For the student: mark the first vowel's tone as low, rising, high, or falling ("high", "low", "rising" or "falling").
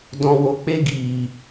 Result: low